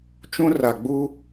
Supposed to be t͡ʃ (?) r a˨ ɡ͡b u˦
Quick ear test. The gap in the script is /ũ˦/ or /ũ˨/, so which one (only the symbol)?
ũ˦